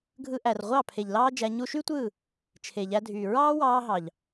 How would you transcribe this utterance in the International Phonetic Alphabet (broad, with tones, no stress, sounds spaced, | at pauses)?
ɡʱ ɯ˧ ʔ æ˨ r ʁʷ ɑ˦˨ pʰ e˨ ʎ l ɑː˦ d͡ʒ æ˧ ɲ u˧ ʃ y˦ tʷ ɯː˦˨ | t͡ʃʰ e˨ ʎ æ˧ dʱ yː˨ ɹ ɑː˦ w ɑː˧ ɦ ɑ˨ ʎ